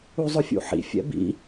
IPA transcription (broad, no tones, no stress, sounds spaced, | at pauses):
u zˤ ʊ fʲ ṵ ħ ḭ fʲ ɛ̰ b ḭ